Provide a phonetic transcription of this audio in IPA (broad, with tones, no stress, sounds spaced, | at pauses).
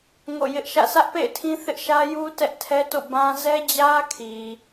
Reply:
ŋ o̰˦˨ j ɪ˦ ʔ ʃ ä̰˦˨ sʰ ä˦ ʔ p ḛ˦˨ ɪ̯ tʰ ĩ˦ θ ɪ˦ ʔ ʃ ä˦ j u˦ t ɛ˦ ʔ tʰ ɛ˦ t o̰˦˨ b ã˦ z ɛ˦ d͡ʑ ä˦ kʰ i˨